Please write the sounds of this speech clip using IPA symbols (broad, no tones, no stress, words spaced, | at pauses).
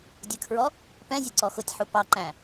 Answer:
dʲəkʰɹɔ | pɛ̃zʲəǀɔ xʊtʲħu pɑǃæ̃